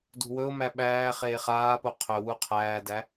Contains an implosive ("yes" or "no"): yes